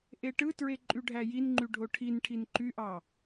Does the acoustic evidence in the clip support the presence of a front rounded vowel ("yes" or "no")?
yes